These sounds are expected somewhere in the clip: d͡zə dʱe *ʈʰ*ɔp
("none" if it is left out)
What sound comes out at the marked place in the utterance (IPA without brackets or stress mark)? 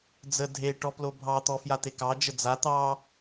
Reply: ʈ